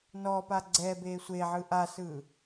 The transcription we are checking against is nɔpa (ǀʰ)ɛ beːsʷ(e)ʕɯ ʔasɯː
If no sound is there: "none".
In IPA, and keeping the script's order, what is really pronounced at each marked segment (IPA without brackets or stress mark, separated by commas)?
ɡ͡ǀ, eː